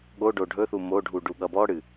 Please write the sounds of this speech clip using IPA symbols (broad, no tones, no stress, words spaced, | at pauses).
ɠoɖo ɖʱɵθu moɖʱu ɖuɠʌbɔɽɨ